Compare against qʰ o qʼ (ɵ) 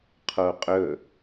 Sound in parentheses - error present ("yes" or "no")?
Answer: no